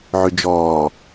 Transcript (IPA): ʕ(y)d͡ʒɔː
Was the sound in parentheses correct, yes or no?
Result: yes